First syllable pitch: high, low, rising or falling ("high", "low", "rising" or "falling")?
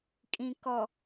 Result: low